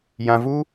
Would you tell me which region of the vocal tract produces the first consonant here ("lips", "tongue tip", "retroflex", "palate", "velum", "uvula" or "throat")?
palate